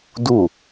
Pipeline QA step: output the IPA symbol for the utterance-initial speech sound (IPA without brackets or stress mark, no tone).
d